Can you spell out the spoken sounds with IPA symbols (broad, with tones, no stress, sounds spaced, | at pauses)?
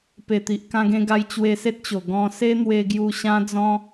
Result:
p e˨˩ t̪ i˨ ʔ k ã˧ ɡ ẽ˧ ɡ a˧ j t͡ɕ w e˧ s e˦ t̚ t͡ɕ o˨˩ ɡ ɔ̃˧ s e˦ n̪ w e˧ ɡ j u˧ ɕ ã˦ d͡z ɔ̃˦